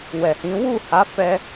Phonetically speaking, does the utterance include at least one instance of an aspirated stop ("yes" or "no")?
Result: no